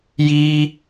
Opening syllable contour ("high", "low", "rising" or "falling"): high